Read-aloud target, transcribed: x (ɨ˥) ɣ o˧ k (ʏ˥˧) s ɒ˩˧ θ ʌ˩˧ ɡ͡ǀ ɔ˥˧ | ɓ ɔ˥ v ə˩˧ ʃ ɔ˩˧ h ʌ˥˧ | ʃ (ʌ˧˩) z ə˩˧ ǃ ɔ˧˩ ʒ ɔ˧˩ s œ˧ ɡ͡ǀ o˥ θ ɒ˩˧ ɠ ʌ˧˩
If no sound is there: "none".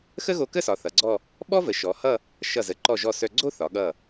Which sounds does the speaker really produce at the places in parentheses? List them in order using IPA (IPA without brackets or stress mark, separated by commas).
ə˥, ə˥˧, ʌ˧˩